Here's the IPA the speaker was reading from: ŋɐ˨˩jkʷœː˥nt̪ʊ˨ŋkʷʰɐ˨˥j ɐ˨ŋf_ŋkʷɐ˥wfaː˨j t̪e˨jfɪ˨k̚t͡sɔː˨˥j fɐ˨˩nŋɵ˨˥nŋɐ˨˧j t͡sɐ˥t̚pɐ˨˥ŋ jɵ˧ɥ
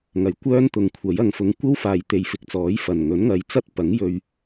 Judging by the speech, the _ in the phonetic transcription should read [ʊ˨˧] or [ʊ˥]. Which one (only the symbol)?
ʊ˨˧